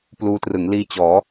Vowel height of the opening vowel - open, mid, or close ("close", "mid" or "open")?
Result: close